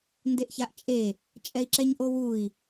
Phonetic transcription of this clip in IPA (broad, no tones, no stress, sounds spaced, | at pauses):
n d e ʔ ç a ʔ t͡ʃʼ e | t͡ʃʼ ɛ i̯ ǁ ɛ ɲ ʔ o w u i̯